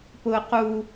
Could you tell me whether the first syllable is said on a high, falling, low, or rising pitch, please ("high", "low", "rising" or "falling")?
low